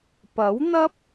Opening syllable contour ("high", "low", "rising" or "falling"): rising